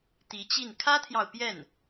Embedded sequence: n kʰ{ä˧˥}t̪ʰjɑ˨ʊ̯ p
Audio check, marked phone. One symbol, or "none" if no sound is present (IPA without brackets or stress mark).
ä˥